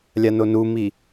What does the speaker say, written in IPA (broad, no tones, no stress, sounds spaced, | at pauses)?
lʲ a n o n u m i